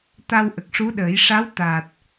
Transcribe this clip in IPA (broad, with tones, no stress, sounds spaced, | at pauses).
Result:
t̪ a˧ w ʔ ə˨˩ k̚ ʂ u˧˥ ɗ əː˨˩˦ j ʂ a˧˥ w t̪ a˨˩ t̚